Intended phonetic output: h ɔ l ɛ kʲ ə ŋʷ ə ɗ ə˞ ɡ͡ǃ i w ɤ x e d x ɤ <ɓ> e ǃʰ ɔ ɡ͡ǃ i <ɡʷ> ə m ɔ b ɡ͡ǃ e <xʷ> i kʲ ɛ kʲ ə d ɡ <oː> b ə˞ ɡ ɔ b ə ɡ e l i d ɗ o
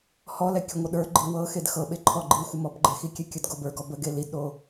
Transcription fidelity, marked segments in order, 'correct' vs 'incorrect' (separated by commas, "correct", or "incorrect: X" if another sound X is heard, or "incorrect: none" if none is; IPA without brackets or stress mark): correct, incorrect: xʷ, incorrect: x, incorrect: o